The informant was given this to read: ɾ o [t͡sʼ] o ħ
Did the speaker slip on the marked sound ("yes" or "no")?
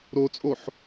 no